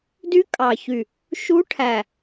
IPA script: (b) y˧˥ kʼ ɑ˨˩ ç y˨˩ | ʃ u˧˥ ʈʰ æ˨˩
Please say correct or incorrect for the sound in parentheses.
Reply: incorrect